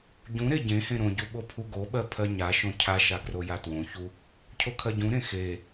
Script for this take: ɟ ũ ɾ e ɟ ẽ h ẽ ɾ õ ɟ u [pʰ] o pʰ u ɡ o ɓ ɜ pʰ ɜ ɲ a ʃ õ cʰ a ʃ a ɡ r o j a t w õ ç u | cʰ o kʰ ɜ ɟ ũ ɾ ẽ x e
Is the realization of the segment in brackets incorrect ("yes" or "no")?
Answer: yes